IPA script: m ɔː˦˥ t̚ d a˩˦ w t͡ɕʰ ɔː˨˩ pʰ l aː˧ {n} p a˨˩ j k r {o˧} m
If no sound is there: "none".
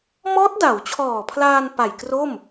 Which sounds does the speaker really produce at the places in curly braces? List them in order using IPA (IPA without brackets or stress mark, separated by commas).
n, o˥˩